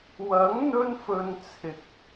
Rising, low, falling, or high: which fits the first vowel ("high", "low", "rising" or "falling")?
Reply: rising